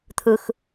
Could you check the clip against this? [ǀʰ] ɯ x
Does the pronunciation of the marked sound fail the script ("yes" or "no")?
yes